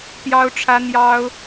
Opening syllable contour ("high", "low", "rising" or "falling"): high